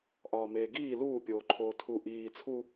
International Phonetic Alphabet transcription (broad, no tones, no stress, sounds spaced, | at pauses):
ʔ ɒː m eː ɡ iː l uː pʲ oː ǃʰ oː tʰ u ʔ iː t͡sʰ u